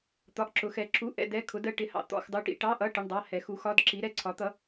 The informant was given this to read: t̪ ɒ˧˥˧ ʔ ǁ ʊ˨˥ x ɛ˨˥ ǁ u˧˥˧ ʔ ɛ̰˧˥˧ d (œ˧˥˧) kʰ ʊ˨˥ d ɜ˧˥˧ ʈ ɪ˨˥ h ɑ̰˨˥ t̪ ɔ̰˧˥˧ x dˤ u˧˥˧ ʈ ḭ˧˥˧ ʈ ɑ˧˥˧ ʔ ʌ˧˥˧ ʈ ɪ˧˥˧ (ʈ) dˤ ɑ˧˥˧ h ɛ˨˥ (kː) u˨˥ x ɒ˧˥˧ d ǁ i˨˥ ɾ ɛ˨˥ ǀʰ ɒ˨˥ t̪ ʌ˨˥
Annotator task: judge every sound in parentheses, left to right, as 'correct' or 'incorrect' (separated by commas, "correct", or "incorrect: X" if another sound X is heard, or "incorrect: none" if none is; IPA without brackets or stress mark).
incorrect: ɛ˧˥˧, incorrect: ɳ, incorrect: x